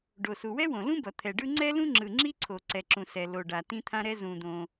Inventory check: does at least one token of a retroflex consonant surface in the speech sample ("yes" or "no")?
yes